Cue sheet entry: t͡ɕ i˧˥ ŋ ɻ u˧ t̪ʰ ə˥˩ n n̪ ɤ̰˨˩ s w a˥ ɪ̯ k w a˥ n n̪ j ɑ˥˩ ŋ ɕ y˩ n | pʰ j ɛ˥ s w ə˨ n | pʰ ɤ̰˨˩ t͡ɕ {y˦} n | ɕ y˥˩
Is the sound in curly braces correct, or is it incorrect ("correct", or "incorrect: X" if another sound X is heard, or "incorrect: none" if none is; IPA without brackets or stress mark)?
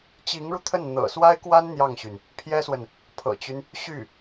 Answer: correct